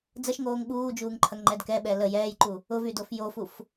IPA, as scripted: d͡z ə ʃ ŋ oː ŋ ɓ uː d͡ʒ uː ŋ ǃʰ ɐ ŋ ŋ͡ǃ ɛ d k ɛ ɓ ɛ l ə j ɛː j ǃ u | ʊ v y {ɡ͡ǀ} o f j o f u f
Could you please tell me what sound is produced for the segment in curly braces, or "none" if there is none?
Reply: d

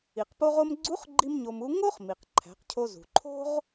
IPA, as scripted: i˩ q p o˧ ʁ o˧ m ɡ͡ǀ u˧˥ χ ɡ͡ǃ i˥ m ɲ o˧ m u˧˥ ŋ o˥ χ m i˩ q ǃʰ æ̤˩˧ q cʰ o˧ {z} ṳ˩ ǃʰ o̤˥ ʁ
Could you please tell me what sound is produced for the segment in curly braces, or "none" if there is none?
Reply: z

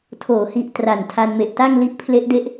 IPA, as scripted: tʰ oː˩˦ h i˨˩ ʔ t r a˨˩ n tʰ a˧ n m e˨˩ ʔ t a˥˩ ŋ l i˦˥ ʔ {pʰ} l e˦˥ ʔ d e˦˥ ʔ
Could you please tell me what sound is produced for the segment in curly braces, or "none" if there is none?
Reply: pʰ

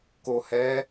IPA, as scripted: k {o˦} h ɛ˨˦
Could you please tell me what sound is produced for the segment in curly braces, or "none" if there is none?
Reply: o˨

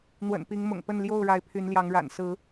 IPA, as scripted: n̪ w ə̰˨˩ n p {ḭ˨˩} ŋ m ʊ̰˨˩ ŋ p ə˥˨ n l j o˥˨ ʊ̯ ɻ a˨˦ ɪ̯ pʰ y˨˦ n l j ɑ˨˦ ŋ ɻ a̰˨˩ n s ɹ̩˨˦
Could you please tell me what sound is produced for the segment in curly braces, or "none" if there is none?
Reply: i˨˦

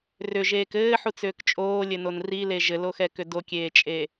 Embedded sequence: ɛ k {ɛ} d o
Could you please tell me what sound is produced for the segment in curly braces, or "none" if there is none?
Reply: ʏ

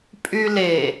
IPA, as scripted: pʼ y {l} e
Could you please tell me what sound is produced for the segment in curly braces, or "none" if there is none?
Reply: l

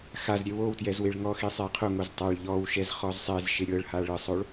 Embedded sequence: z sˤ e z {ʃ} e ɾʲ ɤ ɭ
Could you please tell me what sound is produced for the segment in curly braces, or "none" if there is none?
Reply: ʃ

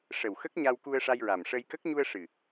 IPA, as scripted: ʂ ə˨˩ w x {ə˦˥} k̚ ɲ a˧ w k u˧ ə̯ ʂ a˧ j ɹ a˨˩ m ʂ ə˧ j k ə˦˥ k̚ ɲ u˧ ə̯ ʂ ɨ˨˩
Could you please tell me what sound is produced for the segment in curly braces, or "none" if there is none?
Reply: ə˦˥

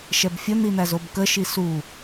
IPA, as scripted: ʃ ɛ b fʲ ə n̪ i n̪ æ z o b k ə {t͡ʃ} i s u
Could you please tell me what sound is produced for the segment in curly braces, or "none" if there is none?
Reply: ʃ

